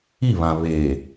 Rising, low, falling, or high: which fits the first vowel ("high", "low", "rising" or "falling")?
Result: falling